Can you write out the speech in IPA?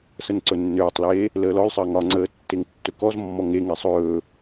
s ə n ǀ ɵ nː øː tˤ l eː | l əː l ɔ l sˤ əː ŋ ɒ ŋ͡ǀ əː tː e ŋ tː ɵ k ɔ z mː ɔ ŋ e ŋ e sˤ ɵː

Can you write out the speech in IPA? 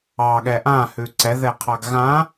ɑ ɠ ɛ ʔ ã h ʉ ǀ ɛ ð ɛ qʰ ɑ ɡ ɣ ã

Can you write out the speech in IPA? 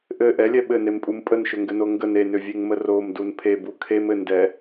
ʔ ɘ ʔ ɛ lʲ ɛ ɓ ɘ n e m pʼ u m pʼ ə n ʃ ʏ ŋ ɡ ɘ n o ŋ ɡ ə n e n ʏ vʲ e ŋ m ə r o m d u n pʰ e b u kʰ e m ɘ n d ɛ

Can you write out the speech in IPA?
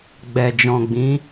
ɡ͡b ɛ˨ d͡ʒ ɔ̃˨ ɡ͡b ĩ˨˦

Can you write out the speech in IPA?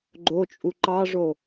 ɡ͡ǃ o t͡ʃʼ u ǃ ɑ ʐ o

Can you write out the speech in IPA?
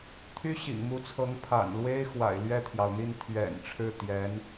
t̪ʰ y˥ ɕ ḭ˨˩ ŋ m u˧˥ t͡sʰ ɤ˧˥ ŋ pʰ a̰˨˩ n l w e˥ ɪ̯ x w a̰˨˩ ɪ̯ l ɥ ɛ˥˩ t̪ʰ j ɑ˩ ʊ̯ n̪ i˥˩ n t̪ʰ ɥ ɛ̰˨˩ n ʈ͡ʂʰ ɻ̩˥˩ t̪ j ɛ˧˥ n

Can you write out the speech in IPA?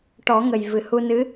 ʈ ɔ˨˩˦ ŋ ə˨˩ j v ɨ˨˩ h u˧ n ɨ˧˥

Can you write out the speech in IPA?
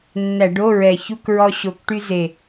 nː æ˧˩˧ ɖ o˧˥˧ ɹ ɛ˨˩ ç u˧˥˧ k ɹ ɔ˧ ɕ o˨˩ k ʈ y˧ z e˨˩

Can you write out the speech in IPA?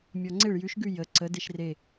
mʲ ɔ ŋ͡ǀ e ɭ j ʉ ʃ ɡ ʉ j ə ǀ ə d e ʃ r e

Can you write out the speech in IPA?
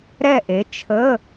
ɾ ɛ˥˨ ʔ e˨˥ t͡ʃʰ ə˧˥˧

